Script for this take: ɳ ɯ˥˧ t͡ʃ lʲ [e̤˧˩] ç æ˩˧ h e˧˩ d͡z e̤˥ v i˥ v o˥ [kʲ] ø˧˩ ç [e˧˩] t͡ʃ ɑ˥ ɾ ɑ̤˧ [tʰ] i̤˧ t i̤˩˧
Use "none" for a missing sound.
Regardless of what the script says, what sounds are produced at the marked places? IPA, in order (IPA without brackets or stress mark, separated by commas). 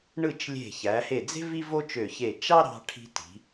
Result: e̤˧˩, t͡ʃ, e˧˩, ʈʰ